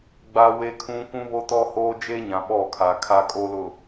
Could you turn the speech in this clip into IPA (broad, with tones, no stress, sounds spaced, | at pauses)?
ɡ͡b a˦ w e˦ kʰ ũ˦ kʷ ũ˦ β o˦ t ɔ˦ h oː˦ d͡ʒ eː˦ ɲ ã˨ ɓ ɔ˦˨ kʰ aː˨ kʰ a˦ kʼ o˦ l ʊ˨